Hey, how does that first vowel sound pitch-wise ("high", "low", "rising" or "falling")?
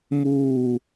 falling